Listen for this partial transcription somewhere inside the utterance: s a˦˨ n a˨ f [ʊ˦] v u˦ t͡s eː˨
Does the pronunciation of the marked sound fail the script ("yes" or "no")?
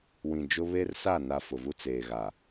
yes